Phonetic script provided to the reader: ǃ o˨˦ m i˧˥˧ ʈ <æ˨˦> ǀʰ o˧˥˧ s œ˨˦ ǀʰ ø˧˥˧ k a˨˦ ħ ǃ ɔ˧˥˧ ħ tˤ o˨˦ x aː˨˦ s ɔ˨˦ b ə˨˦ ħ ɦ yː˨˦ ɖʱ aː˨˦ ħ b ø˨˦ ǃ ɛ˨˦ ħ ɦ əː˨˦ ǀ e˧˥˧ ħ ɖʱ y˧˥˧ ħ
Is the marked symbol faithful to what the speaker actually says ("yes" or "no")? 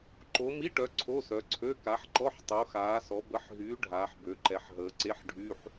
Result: no